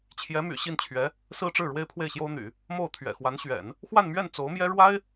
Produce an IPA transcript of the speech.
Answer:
t͡ɕʰ j ɛ˧˥ m y̰˨˩ ɕ i˥˩ n t͡ɕʰ ɥ ɛ˧˥ | s ɹ̩˥ ʈ͡ʂ ɻ̩˥˩ ɻ w e˥ ɪ̯ pʰ w e˥˩ ɪ̯ ɕ j o˥ ʊ̯ n̪ y̰˨˩˦ | m o˥˩ ʊ̯ t̪ʰ ɥ ɛ̰˨˩ x w a˧˥ n ɕ ɥ ɛ̰˨˩˦ n | x w a˥˧ n m ɥ ɛ˥˩ n t͡s o˧˥ ʊ̯ m j ɛ˥ ɻ w a˥ ɪ̯

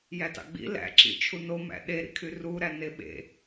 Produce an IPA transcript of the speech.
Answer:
j æ t ɑ̰ ɡ͡b ḭ l æ̰ ǁ ḭ t͡ʃʰ u n o m æ̰ ɗ e ɾ ḭ kʰ y r u ɾ æ n e ɓ ḛ

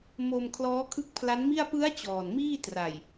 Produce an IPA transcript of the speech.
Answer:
m o˧ m kʰ l ɔː˦˥ kʰ ɯ˦˥ k̚ pʰ l a˦˥ n m i˥˩ a̯ p ɯ˦˥ a̯ t͡ɕ ɔː˨˩ n m iː˥˩ t r a˨˩ j

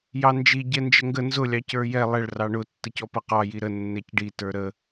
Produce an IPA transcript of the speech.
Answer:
j ɑ n d͡ʒ i ɟ ɛ n d͡ʒ ə ŋ ɡ ə n z ʊ lʲ ɑ c ə˞ j ɛ lˠ ɛ ɭ r ɑ ɳ ʊ tː ə c ɔ p ʌ q ɑ j i ɾ ə nː ɛ c ɖ i t ə˞ ɾ ə

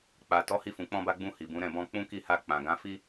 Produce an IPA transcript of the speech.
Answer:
k͡p a˨ t ɔ˨˦ h i˧ f ũ˨ k͡p ɔ̃˧ b a˧ ɡ͡b ũ˧ h i˨ b ũ˨˦ ɾ ɛ̃˦˨ b ɔ̃˧ k͡p ũ˦ k i˦˨ h a˧ k͡p ã˨ ɡ ã˨˦ f i˦

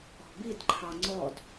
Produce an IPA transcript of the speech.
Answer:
ɔ̤ b i d ǃʰ ɑ ŋ͡ǀ ɔ d

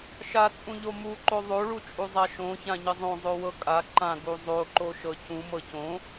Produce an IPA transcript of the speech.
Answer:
ʃ a t͡sʼ ũ ʎ o m u ǃ o ðˤ o ɭ u t͡ʃʼ u zˤ a ʃ õ ç ã ɲ ɘ zˤ õ zˤ o w ɤ kʼ a ǃ ã ɡ u zˤ o ǃ o ʃ ɤ c ũ m ɤ c õ

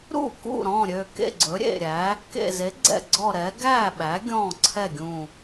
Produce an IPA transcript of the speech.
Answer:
ɾ ṵ˥˩ k ṵ˥˩ ɾ ɔ̃˥˩ ɾʲ ø˧˩ k ḛ˥˩ ɡ͡ǀ ɵ˩˥ ɾʲ ḛ˧˩ ɾʲ æ˩˥ | k ḛ˧˩ z e˩˥ ɡ͡ǀ ɛ̰˧˩ ɡ͡ǀ ɔ˧˩ ɾ ɛ˩˥ ɡ æ˥˩ ɓ æ˩˥ ɡʲ ɔ̃˥˩ ǀʰ ɛ˥˩ ɡʲ ũ˧˩

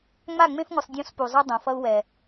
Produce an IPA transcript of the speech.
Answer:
ŋ͡m a˦˨ ŋ͡m ẽ˦ f ŋʷ ɯ˨ sˤ dʲ õ˦ s p u˨ zˤ ʌ˦ dˤ õ˨ f ʌ˦ u̯ w ɛ˨

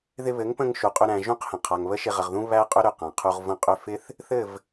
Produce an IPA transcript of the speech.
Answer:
ð ɪ˧ β ɘ˨˦ ŋ p ə̃˧ ŋ ʃ u˨ qʼ ʏ˧ ɾ æ̃˨ ʒ ũ˦˨ q h ə̃˨ qʰ a˨ ŋ β ə˦ ʃ ɪ˧ ʁ ə˨ ʁ ð ũ˦ β æ˦ qʼ ʏ˦ ɾ ʏ˨ q ã˨ qʰ u˧ ʁ v ə̃˧ qʼ ʏ˧ f ɪ˦ θ | θ ɘ˦˨ v

